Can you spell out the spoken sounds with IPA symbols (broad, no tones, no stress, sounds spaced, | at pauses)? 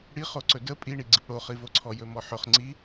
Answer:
ɽ i χ o ǀ ɵ d ə pʼ i ɳ i ɡ͡ǀ ɨ p ɽ o χ i v o ǀʰ ɔ j ɵ m ɔ ħ ɵ χ ŋ͡ǀ i